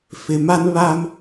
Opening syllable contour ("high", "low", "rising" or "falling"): low